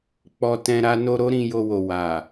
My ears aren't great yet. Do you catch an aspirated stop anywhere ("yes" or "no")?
no